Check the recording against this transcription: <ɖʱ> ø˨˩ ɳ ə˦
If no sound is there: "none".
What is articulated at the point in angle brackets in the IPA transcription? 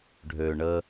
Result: ɖʱ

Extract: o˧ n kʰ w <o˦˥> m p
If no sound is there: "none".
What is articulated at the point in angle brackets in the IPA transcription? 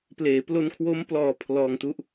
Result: o˦˥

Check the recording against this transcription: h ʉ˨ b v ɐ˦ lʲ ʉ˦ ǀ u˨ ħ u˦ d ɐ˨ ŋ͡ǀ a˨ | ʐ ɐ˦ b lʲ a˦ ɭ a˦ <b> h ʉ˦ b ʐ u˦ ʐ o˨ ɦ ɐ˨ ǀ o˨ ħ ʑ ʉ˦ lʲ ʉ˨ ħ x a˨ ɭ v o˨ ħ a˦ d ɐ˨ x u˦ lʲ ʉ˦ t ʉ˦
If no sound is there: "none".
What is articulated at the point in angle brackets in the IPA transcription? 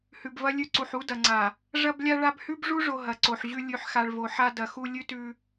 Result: b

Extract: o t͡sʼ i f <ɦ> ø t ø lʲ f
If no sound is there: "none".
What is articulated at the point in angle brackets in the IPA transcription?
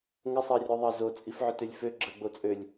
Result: ʕ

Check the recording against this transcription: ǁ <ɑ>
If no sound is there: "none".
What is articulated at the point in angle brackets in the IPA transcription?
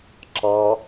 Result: ɑ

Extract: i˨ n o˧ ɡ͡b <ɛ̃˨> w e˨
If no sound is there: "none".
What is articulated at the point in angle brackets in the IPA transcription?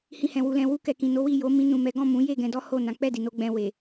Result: ɛ̃˧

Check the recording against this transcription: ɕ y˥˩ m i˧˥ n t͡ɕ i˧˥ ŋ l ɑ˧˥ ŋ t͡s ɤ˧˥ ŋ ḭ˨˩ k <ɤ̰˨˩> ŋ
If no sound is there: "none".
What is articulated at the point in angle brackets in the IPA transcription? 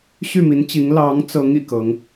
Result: ɤ˧˥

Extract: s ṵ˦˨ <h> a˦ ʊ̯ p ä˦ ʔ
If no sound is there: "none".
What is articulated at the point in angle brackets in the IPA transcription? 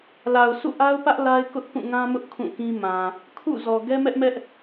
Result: ʔ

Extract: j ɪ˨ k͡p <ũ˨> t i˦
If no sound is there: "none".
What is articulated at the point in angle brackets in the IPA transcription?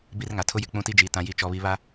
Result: ũ˦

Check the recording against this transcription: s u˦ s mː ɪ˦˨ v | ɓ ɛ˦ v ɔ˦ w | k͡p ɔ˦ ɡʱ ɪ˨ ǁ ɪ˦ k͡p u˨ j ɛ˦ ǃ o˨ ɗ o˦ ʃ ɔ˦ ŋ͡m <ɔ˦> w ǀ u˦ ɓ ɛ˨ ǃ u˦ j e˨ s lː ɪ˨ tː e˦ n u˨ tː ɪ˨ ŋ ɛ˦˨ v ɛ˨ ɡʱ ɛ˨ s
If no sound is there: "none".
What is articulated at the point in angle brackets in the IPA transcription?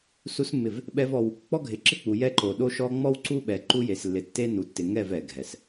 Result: ɔ˦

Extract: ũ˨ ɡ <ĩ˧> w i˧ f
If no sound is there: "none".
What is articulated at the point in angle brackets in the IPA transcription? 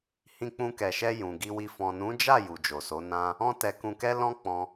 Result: i˧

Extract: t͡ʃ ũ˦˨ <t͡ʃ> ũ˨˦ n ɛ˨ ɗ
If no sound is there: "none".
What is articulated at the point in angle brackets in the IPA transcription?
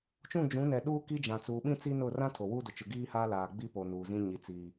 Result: d͡ʒ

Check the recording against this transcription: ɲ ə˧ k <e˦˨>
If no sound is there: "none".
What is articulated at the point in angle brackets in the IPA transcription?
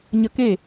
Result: e˦˨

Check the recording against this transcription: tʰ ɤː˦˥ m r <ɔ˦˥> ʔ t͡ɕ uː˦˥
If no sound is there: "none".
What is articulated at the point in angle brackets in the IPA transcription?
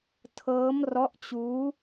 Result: ɔ˦˥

